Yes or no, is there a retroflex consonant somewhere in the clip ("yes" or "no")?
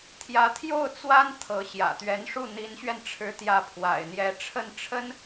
yes